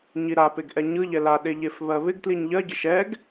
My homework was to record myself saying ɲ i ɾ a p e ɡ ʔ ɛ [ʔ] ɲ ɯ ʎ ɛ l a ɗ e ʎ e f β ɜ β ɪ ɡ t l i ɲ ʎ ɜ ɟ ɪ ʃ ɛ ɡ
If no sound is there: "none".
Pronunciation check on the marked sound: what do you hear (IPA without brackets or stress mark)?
none